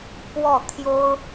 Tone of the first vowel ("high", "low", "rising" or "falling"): falling